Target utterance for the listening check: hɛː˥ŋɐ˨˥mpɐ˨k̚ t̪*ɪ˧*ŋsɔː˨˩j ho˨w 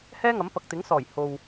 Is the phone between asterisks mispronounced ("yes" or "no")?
yes